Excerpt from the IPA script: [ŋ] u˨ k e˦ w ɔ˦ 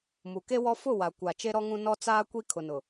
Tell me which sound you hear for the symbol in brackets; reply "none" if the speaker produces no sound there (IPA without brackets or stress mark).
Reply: m